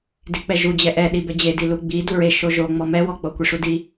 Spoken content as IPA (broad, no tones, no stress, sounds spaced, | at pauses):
d i k͡p ɛ ʒ u d͡ʑ ɛ ʔ ɛ ɗ i b ɛ d͡ʑ e d i l u ɡ͡b i d u ɹ e ʃ o ʒ o ŋ͡m ɔ m ɛ w ɔ k͡p o kʷ i ʂ u d i